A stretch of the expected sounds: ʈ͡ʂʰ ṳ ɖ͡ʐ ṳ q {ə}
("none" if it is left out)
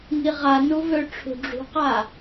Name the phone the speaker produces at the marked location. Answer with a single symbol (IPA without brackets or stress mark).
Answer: a